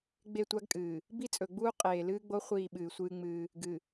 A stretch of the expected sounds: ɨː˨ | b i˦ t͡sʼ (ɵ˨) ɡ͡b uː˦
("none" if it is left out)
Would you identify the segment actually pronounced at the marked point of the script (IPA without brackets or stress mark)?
ɵ˨